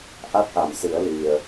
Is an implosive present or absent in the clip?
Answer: absent